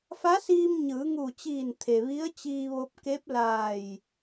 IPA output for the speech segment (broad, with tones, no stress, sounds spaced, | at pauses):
f a˧˥ s iː˧ m ɲ ɯː˩˧ ŋ uː˧˩ t͡ɕ iː˧˩ n t̪ʰ e˩ ʋ i˧˥ ə̯ t͡ɕ iː˧ ʋ o˧ p̚ k e˧˥ p̚ l aː˧˩ j